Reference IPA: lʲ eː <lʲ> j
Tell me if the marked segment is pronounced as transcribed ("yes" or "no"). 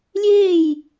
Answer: no